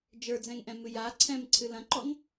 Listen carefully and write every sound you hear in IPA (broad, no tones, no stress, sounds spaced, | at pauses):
d͡ʒ ə˞ d͡z ɛ̃ ŋ ʔ ɛ̃ m ɨ j a ǀʰ ɛ̃ m ǀʰ ɨ l ɐ̃ ǃ ɔ ŋ